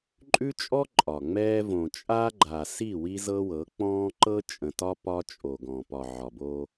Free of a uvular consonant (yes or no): yes